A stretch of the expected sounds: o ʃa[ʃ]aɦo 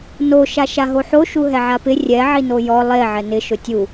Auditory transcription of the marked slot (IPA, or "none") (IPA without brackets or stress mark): ʃ